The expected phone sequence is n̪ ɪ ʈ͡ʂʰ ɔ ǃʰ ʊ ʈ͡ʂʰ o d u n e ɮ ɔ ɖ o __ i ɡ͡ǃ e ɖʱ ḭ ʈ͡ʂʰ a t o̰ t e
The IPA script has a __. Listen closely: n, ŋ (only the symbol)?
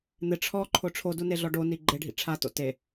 n